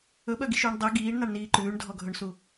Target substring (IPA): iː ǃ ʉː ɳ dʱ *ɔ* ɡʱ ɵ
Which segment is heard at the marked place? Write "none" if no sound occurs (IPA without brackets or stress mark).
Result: ɔ